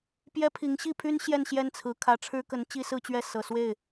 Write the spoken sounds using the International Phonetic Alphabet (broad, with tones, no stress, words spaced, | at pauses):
pjɛ˥pʰi˧˥ŋ ɕi˥˩pʰy˥n ɕjɛ˥˧nɕjɛ˥˩nt͡sʰɹ̩˧˥ kʰä˧˥ʈ͡ʂʰɻ̩˥kə˧˥n t͡ɕi˥sɹ̩˥˧t͡ɕɥɛ˥˩ sɤ˨˩swe˥˩ɪ̯